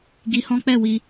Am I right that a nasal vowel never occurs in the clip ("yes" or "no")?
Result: no